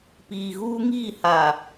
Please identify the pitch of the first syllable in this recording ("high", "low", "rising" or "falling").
low